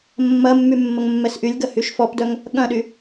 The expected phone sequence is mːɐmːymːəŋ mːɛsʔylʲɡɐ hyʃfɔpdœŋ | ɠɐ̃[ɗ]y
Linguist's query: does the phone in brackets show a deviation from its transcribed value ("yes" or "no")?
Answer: no